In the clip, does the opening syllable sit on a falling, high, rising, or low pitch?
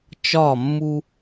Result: falling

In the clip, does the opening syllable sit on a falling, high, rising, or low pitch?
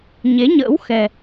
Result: rising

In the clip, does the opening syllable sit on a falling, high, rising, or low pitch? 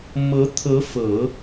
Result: rising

